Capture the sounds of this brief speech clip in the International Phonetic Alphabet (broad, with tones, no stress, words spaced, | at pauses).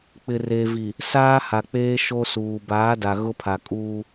k͡pɪ˨re˨vi˨ | saː˦ha˨k͡peː˦ ʃo˦suː˨ baː˨˦da˨ɣʊ˦pʰa˨ kʼuː˦